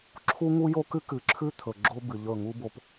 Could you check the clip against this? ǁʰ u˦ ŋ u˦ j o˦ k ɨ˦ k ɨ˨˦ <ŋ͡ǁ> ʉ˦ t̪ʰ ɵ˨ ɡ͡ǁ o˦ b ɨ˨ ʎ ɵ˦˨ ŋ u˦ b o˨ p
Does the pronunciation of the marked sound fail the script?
yes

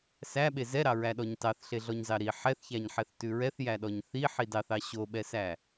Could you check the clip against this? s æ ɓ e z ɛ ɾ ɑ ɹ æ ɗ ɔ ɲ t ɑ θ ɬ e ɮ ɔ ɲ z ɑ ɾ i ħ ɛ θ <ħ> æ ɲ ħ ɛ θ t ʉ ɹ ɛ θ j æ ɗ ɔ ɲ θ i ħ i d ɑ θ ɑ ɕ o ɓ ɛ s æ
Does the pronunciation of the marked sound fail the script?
yes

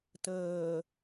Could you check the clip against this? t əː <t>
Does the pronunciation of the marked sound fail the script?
yes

